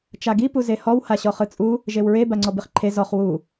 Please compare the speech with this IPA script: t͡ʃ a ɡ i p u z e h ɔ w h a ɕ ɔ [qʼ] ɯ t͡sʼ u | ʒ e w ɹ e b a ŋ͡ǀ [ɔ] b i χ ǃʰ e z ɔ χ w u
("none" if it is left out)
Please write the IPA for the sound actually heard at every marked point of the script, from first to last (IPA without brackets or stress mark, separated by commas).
χ, ɔ